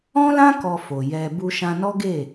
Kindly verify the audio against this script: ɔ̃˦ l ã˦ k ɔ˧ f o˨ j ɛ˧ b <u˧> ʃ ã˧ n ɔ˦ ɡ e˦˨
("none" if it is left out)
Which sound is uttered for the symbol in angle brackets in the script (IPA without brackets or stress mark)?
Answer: u˧